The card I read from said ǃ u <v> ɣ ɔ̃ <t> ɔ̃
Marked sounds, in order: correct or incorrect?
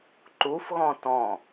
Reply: incorrect: f, correct

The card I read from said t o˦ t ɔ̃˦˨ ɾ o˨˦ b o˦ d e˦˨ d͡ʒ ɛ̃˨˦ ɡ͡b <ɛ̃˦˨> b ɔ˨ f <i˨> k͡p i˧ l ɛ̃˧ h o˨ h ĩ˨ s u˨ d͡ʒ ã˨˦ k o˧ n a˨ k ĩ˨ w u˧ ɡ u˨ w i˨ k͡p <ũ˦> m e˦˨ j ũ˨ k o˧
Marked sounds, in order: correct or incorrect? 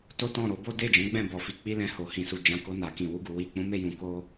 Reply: correct, correct, incorrect: ũ˨˦

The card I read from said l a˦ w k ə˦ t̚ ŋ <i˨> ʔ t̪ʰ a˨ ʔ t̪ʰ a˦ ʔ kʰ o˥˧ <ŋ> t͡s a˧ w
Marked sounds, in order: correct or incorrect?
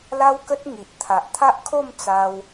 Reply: correct, incorrect: m

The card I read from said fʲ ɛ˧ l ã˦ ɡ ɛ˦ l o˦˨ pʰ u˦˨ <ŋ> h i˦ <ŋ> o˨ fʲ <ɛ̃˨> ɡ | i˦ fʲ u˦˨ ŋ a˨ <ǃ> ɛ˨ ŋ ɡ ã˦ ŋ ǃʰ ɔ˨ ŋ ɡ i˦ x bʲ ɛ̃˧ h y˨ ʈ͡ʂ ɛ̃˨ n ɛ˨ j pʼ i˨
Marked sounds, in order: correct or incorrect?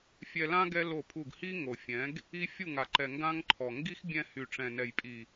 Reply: incorrect: ɡ, correct, incorrect: ɛ̃˨˦, correct

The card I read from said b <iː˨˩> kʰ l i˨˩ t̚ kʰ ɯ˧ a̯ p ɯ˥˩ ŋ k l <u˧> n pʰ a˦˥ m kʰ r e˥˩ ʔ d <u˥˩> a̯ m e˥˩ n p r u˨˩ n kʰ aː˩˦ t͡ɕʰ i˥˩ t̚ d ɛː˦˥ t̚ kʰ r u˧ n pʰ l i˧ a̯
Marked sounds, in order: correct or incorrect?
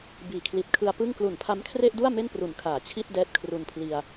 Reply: correct, incorrect: u˨˩, correct

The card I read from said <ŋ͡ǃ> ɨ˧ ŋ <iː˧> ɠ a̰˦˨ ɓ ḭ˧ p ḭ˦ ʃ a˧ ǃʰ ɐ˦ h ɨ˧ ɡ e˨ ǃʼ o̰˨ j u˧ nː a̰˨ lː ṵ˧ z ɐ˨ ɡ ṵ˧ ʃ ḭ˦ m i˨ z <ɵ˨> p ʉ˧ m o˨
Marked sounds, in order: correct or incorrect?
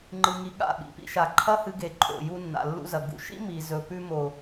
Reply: correct, incorrect: i˧, correct

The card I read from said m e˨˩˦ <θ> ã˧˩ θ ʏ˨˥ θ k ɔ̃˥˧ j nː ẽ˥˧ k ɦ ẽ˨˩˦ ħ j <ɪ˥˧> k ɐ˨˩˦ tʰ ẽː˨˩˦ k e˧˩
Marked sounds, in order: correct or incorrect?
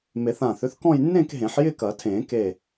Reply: correct, correct

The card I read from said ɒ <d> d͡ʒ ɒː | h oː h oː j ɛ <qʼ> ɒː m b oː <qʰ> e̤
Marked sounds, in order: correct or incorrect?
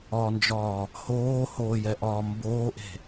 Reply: incorrect: n, incorrect: ʔ, incorrect: ʔ

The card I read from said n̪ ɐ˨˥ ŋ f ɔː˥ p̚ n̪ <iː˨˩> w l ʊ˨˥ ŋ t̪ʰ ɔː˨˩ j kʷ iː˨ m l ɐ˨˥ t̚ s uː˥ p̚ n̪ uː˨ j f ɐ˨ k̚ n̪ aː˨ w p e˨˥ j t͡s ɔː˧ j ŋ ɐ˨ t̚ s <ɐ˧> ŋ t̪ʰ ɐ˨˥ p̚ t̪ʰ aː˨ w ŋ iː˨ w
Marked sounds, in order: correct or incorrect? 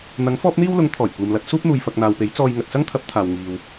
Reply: incorrect: iː˥, incorrect: ɐ˥

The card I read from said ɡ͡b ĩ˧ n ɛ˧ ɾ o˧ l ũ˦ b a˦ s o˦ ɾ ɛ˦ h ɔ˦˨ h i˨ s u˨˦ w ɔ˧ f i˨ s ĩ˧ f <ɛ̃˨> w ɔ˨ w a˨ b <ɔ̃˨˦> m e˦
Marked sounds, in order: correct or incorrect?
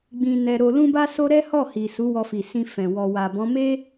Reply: correct, correct

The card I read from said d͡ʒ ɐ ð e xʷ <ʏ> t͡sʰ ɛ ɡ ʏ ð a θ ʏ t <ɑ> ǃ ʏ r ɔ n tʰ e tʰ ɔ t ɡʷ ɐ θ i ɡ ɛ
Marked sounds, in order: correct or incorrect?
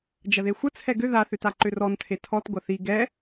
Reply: incorrect: ə, incorrect: a

